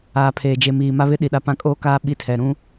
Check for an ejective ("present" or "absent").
present